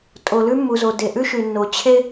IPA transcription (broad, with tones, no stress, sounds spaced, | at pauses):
tʼ o˨ l ʉ˥ mː u˨ z o˨ d e˨ ʔ ʉ˥ ʃ ʉ˨ nː o˨ t͡ɕʰ e˥